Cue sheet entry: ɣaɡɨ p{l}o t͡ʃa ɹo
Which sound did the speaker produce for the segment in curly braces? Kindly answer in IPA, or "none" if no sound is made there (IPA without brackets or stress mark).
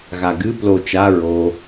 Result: l